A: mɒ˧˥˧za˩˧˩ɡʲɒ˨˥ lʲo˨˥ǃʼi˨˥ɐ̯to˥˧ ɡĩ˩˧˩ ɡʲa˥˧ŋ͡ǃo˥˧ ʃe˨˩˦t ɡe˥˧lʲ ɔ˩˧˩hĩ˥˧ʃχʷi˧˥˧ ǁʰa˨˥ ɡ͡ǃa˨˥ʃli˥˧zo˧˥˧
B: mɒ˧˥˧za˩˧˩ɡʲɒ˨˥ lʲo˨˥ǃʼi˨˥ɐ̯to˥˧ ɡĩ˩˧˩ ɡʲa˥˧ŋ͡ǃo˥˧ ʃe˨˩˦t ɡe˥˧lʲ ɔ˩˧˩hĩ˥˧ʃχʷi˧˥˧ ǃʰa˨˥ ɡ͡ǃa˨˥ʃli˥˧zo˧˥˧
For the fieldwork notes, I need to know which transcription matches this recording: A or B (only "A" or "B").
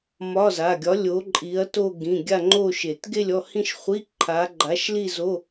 B